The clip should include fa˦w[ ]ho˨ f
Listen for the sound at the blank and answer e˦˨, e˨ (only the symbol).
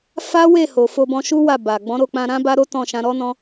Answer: e˦˨